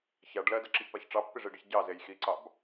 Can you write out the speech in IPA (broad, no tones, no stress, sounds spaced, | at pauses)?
ç a ɖ l ɜ d a ǁ i ç p a ç ʈ͡ʂ ɑ pː i ʐ i ɖ i ç ɟ ɑ z e j x i ǀ ɑ b